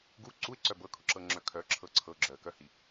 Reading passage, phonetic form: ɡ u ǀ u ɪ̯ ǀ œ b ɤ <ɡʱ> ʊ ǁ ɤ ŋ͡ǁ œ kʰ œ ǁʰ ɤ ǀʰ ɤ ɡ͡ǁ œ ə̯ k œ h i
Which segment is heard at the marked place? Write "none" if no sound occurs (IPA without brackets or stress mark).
kʰ